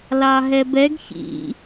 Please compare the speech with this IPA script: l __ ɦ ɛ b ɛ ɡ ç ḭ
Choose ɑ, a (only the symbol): ɑ